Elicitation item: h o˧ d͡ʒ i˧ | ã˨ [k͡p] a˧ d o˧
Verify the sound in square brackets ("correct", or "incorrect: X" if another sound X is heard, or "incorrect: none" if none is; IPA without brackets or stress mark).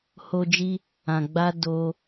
incorrect: ɡ͡b